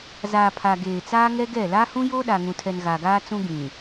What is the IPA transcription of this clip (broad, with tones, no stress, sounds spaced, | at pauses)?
z aː˨ pʰ a˨ ɡ eː˨ t͡s aː˦ ŋ ɛ˦ ɡ ɛ˦˨ l a˦ h ũ˦ j oː˦ ɗ a˨ ŋ ũ˨ tʰ ɛ˨ n ɣ a˨ ɡ aː˦ t͡s ũ˦ ɡ ĩ˨